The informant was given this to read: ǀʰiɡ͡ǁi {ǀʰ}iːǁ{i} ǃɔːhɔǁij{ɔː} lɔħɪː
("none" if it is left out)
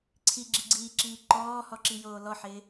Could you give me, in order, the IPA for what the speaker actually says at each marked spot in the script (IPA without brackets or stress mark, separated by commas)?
ɡ͡ǀ, iː, oː